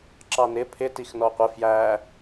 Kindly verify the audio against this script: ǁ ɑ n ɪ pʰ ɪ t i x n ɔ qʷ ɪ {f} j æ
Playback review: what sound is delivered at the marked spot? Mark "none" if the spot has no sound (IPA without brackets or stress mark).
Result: f